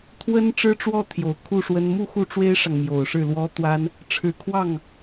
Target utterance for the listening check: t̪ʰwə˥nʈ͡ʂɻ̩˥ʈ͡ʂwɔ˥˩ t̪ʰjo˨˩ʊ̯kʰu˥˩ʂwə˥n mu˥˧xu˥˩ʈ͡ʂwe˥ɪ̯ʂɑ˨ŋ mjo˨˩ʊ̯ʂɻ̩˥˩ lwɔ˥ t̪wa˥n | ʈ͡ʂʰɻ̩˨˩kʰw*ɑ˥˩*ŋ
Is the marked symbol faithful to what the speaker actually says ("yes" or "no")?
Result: yes